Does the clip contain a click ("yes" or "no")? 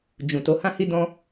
no